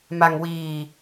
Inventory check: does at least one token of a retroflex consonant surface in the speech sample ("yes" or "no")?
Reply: no